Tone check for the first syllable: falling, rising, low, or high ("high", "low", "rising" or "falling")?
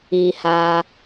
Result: low